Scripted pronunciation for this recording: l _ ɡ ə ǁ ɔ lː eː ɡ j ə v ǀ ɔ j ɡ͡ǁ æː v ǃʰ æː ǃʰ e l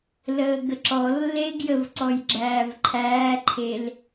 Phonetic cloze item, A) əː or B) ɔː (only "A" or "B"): A